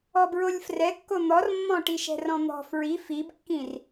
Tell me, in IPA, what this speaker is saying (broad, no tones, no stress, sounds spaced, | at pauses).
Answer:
ɔ b ɹ o lʲ f r ɛ kː o n̪ ɔ r mː ɔ̃ ʈ i ʃ ɛ̤ r ɔ̃ n̪ ɔ̤ f ɹ i f i b kː ĩ r